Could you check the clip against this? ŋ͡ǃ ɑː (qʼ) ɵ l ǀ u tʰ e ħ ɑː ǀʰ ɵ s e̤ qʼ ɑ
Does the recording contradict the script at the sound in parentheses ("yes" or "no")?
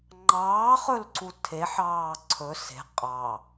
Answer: yes